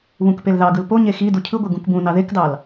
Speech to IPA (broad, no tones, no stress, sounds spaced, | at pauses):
β ũ k p e l ð ɑ ɡ ɯ l p o ɲ e x i d u cʰ ɯ ɡʷ e ɡ ũ k b ũ n ɑ ð e k d ɑ l